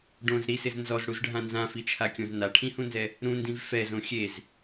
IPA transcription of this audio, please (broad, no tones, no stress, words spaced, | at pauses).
ɖõz ɾisɪz nzɔzɽuzɖʱã nzãfit͡ʃʰakʲõz naʈʰĩhũnzɛ | ɾũndĩv fɛzõ xʲez